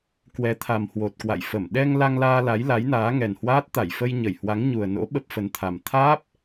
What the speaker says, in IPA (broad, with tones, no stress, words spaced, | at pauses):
kwɛ˨˦t̪ʰa˨˩mhwo˨˩t̚ kwa̰˧˨jfə˧˩m ɗɛ˧ŋ la˧ŋlaː˧ la˨˦jla˨˦jnaː˨˦ŋɛ˨˩n hwaː˦˥t̚ t̪a˧˩jfə˧j ɲə˧˩jhwa˨˦ŋɲu˨˩ə̯no̰˧˥ ɓə˦˥p̚fə˨˦nt̪ʰa˨˩m t̪ʰaː˦˥p̚